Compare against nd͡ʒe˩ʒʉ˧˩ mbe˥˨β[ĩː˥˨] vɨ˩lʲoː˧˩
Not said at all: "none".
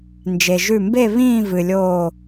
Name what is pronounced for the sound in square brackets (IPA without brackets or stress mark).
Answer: ĩː˥˨